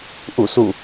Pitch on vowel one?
falling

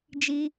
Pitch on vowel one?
high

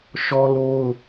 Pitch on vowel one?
high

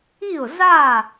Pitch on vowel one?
falling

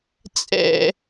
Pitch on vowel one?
low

